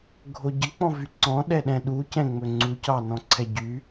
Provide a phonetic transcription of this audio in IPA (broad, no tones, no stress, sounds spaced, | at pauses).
ɡʱ o ɟ ə k͡p ɔ̃ v y ǀ ɔ̃ ɗ ɛ ɗ ɛ̃ ɗ u c ɛ̃ ŋ͡m ɵ ŋ͡ǀ u c ɑ n ɔ̃ ǀʰ ɛ ɟ y